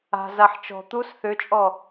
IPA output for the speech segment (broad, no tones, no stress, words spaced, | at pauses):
a̤zaħ t͡ʃɔ̤ t̪us θʏt͡ʃʼɔ